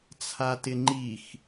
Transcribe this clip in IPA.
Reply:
t͡sʰ a t ɪ ŋ͡ǃ i x

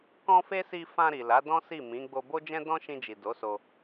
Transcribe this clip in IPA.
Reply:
k ɔ̃˦ f e˦ s i˧ f ã˧ ɾ i˨ l a˨˦ d ɔ̃˦ s i˦˨ m ĩ˨˦ ɡ͡b o˧ b o˦ d͡ʒ ɛ̃˦ d ɔ̃˦ ʃ ĩ˧ d͡ʒ i˨ d o˨˦ s o˧

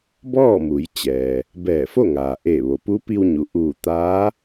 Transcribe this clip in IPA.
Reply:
b ɔː˥˨ m u˩˧ j t͡ɕ ɛː˩ | b ɛː˧˩ f o˥˨ ŋ aː˩ ʔ eː˧˩ ʋ o˩ p u˧˥ p i˧ w ɲ u˩ ʔ uː˧˩ t̪ aː˧˥

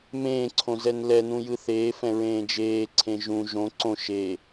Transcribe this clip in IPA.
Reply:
m ẽː ǀʰ õ z ɛ n l ɛ n ũ j ɯ θ eː f ɛ̃ ɹ ẽː d͡ʒ eː ǀʰ ẽ ʒ ũ ʒ õ ǀ õ ʃ e

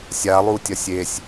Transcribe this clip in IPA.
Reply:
sʲ a lˠ u tʲ ɐ sʲ e sʲ

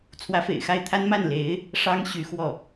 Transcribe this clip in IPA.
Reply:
t͡sʰ w ä˧˥ f ḛ˨˩ ɪ̯ x a˥˩ ɪ̯ t̪ʰ a˥ n m a˥˩ n l e˧˥ ɪ̯ | ʂ ɑ˥ ŋ ɕ y˧˥ x w ɔ˥˩

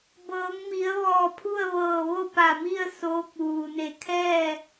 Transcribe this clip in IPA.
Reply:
b ɤː˩˧ ŋ m i˩˧ ə̯ ʋ ɔː˧˩ pʰ u˥˨ ə̯ ʋ ɤː˧˩ ʋ o˥˨ p a˧˩ m i˥˨ ə̯ s oː˧˥ k̚ ʋ uː˩ n e˧˩ kʰ ɛː˥˨

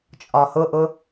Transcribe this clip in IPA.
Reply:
t͡ʃʼ ɒ h ʊ ʔ ʊ

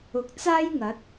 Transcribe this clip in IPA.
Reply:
ʊ˨ k̚ t͡s aː˥ j ŋ ɐ˨˥ t̚

